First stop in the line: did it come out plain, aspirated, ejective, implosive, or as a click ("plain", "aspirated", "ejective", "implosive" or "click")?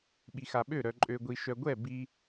implosive